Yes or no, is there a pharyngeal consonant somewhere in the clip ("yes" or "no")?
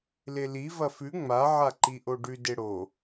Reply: yes